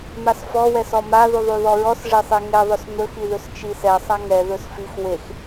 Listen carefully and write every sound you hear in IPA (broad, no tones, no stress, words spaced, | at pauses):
masfɔ wɛsɔma ðuðˤuðɔɹɔs ʐesˤeŋɛ ðˤɵsn̪ɵx iðɵst͡ʃisɛ sˤaŋɛ ðɵsfix wex